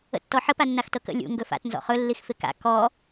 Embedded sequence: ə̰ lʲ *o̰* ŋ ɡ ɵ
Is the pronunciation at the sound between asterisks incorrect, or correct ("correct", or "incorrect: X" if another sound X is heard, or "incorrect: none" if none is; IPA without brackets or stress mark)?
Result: incorrect: ṵ